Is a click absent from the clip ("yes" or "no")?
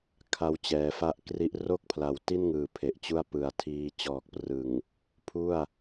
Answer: yes